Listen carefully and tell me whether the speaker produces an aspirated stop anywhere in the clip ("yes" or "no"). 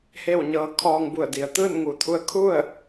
yes